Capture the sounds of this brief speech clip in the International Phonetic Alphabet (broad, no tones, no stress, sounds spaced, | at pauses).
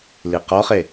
l i q ɔ χ e